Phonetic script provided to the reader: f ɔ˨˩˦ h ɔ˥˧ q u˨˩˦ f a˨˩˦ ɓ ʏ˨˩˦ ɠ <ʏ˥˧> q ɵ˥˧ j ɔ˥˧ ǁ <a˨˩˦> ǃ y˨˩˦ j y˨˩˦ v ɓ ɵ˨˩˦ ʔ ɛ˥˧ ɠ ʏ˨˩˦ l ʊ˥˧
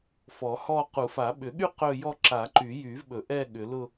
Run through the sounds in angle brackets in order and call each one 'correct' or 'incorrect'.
incorrect, correct

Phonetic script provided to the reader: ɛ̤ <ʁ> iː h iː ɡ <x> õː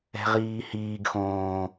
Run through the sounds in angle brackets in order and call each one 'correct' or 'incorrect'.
correct, correct

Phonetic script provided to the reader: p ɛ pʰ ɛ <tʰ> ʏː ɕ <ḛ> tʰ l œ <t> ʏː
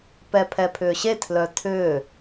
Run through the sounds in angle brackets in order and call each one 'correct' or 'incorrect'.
incorrect, incorrect, incorrect

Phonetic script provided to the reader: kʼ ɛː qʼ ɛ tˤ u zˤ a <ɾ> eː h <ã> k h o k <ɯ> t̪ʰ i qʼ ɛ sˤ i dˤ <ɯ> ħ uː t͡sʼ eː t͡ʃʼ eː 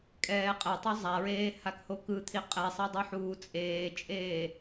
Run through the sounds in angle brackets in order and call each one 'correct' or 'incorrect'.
incorrect, incorrect, correct, incorrect

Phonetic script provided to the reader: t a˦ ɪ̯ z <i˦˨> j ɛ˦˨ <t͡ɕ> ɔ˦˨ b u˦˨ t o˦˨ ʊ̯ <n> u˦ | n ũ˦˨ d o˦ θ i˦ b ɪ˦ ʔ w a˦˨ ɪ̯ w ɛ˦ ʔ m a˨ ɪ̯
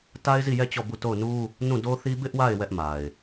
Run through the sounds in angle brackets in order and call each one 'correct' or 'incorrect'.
correct, correct, correct

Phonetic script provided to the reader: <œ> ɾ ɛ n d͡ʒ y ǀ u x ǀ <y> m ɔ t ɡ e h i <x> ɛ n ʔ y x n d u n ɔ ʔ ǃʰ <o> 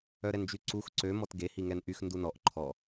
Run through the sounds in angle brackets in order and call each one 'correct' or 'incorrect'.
correct, incorrect, incorrect, incorrect

